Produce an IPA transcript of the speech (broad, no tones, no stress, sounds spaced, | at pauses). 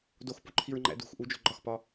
d o x p u ǃʰ i ɹ ŋ͡ǃ æ̰ d ṳ x ʔ u d͡ʒ o̤ ɡ͡ǃ ɒ x p ɒ